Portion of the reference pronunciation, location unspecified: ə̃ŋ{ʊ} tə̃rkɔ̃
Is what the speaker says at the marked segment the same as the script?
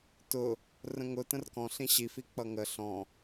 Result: yes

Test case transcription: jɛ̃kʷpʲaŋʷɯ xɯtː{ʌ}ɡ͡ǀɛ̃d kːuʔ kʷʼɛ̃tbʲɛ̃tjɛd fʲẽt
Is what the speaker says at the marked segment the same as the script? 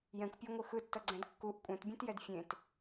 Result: yes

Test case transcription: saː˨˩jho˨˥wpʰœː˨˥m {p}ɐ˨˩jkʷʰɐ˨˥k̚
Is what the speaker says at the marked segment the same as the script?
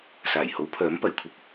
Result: yes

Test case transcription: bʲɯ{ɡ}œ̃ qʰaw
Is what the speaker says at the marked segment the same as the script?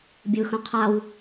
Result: no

